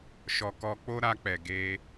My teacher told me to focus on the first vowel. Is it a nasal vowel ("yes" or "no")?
no